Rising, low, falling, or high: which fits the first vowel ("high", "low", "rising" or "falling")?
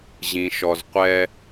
low